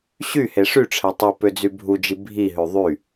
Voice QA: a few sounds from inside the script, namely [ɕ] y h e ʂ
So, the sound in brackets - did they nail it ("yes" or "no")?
yes